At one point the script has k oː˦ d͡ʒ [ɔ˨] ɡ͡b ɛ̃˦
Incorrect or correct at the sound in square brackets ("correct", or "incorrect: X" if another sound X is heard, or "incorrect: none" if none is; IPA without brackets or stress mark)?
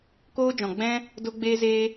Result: incorrect: ɔ̃˨